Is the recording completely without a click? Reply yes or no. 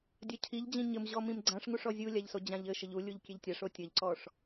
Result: no